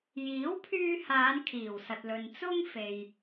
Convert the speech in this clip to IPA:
j iː˨˥ w pʰ yː˧ h aː˨˧ n kʰ iː˨˩ w s ɐ˨ t̚ l ɵ˨ n t͡s ʊ˥ ŋ f e˨ j

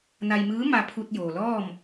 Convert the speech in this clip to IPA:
n a˧ j m ɯː˧˥ m a˧ pʰ u˧ t̚ j oː˩ l ɔː˥˨ m

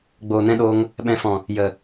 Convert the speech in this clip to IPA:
ɡ͡b oː˨ n ɛ̃˧ ɗ oː˧ ŋ | ɓ ɛ̃˨ f ɔ̃˨ | j ə˨

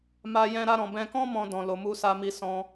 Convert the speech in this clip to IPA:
m a˧ j ɛ̃˧ ɾ a˧ ɾ ɔ̃˨ b ɛ̃˧ k ɔ̃˦ m ɔ̃˧ d ɔ̃˨ l o˨ m u˧ s a˧ m i˧ s ɔ̃˧

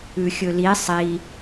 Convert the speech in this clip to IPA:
ʉ xʲ ɵ l i sˤ i

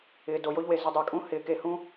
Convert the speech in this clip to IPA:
ɪː˨ d o˨ j o˦ ʎ w e˨ z ɪ˧ dˤ ɪː˨ kʼ ũ˦ h ɪː˨ k e˧ h ũ˦

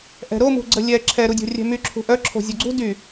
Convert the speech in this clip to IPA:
ʔ ɛ̤ ɾ o m ṳ ɡ͡ǀ ə lʲ ɛ ǁʰ ɛ ɾ u dʲ o̤ rʲ ɛ̤ m y ǁʰ ṳ ʔ œ ǁʰ o̤ zʲ o ɡ͡ǀ ṳ d y

